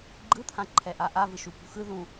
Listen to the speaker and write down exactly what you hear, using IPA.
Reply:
ɡ͡ǃ ɯ t̪ʰ ã ǃʰ ɛ ʔ a ʔ a v ɯ ʃ u p ṳ x ɯ ð ũ

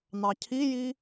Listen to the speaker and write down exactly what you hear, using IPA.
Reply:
n̪ ɑ cʰ i j i

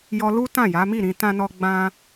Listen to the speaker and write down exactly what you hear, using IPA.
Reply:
j ɔ˧ l u˦ t ã˦˨ j a˨˦ m i˦˨ ɾ ĩ˧ t ã˦ n ɔ˦ ɡ͡b ã˦

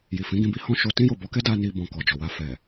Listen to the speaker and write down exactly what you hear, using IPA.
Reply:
j i˨ f ĩ˨˦ ɡ ĩ˧ b i˦ h ɔ̃˦ ʃ o˧ t ĩ˦ j o˦˨ b ɔ˧ k ɛ˦ d a˦ n i˧ b ɔ̃˨ k ɔ˨ d͡ʒ ɔ˨ w a˧ f ɛ˨

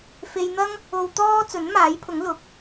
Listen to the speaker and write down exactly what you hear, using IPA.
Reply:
f e˧ j n̪ ɐ˥ ŋ | o˧ w t̪ ɔː˥ t͡s ɵ˨˥ n m aː˨˥ j pʰ ʊ˨˥ ŋ l ʊ˨˥ k̚

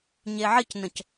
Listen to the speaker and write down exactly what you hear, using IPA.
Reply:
ɲ e ʕ ɪ c n ə̃ c

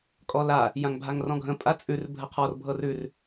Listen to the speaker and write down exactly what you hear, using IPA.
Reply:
kʼ ɔ l a | j ã ŋ bʱ a ŋ r ɔ̃ ɡʱ ə̃ pʼ a t͡sʼ ʉ r bʱ ə qʰ ɔ r bʱ ɤ r ʉ r

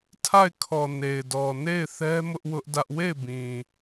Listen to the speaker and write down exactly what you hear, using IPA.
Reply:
tʰ a˦˨ ɪ̯ kʰ ɔ˨ n e˨ ɪ̯ d ɔ˨ n e˦˨ ɪ̯ θ ɛ˦ m ʊ˦ ʔ w ʊ˦ ʔ d ä˦ ʔ w e˦˨ ɪ̯ b ĩ˨

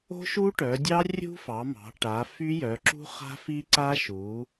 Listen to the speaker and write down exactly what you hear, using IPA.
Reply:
o̤˦˥ ʃ u˦˥ ʈ œ˩˧ dʲ ɑ˦˥ rʲ ṳ˦˥ f ɑ˩˧ m ɑ̤˩˧ ʈ a˩˧ f y˦˥ j œ˩˧ ǁ ṳ˦˥ χ a̤˦˥ f i˦˥ ǀ a˦˥ ʃ u˩˧

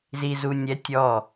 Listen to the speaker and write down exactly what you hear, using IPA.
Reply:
z i z u nʲ ɛ tʲ ɔ

